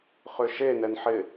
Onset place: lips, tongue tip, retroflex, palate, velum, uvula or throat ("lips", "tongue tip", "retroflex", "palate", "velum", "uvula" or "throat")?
uvula